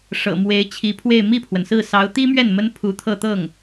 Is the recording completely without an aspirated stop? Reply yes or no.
no